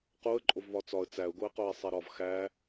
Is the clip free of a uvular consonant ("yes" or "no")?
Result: no